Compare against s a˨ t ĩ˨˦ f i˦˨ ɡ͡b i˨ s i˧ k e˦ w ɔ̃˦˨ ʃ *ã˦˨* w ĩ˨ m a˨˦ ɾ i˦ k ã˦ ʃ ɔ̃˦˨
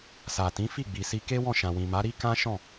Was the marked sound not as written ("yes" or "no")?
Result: yes